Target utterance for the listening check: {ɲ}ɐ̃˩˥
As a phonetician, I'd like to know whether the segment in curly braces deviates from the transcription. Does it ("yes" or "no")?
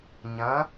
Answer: no